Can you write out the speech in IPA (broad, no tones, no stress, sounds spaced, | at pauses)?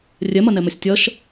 rʲ ɛ m ɐ n ɛ m ɐ sʲ tʲ ɐ ʃ